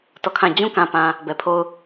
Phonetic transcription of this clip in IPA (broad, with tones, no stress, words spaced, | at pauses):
tɔ˦˨kʰã˦˨ d͡ʑũ˦kã˨pã˨ | bɛ˨pʰo˦˨ʊ̯